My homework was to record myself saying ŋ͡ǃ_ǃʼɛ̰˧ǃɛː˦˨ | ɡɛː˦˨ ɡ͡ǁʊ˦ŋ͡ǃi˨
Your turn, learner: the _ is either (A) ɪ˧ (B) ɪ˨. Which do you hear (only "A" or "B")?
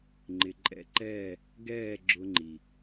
B